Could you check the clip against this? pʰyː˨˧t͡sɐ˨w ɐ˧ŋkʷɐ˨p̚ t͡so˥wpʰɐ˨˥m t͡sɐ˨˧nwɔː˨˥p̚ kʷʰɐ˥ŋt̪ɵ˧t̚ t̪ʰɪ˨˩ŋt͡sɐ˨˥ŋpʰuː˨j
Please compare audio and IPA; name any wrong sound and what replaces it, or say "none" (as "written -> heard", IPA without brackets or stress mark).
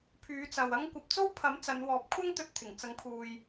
none